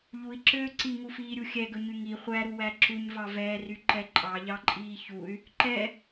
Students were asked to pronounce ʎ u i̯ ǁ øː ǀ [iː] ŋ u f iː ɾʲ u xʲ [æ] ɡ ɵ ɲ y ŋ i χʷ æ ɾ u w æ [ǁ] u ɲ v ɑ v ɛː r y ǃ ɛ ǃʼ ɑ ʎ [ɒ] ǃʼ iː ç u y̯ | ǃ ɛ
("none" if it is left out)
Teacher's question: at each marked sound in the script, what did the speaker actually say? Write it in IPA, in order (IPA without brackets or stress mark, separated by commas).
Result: i, ɛ, ǁ, ɑ